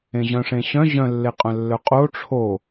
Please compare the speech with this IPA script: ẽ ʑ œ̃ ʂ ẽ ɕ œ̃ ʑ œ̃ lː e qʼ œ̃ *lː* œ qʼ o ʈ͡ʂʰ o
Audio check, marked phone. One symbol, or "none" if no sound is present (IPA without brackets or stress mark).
lː